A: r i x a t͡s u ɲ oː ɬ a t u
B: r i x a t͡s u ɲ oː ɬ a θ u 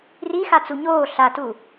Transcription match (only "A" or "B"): A